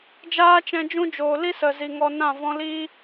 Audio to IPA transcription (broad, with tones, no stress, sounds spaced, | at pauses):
d͡ʒ aː˦ t͡ʃ ɛ̃˧ d͡ʒ ũ˦ d͡ʒ oː˨ l i˦ s ə˨ z i˨ ŋ ɔ˧ n ã˦˨ v ɔ̃˦ l i˦